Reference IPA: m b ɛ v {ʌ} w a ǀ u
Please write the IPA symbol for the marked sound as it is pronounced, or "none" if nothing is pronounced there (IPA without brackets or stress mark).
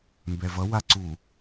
ʌ